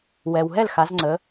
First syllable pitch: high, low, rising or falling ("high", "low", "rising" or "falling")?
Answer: low